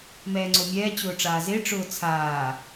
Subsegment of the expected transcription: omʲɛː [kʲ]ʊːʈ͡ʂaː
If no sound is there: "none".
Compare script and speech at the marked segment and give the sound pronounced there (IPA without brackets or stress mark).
t͡ɕ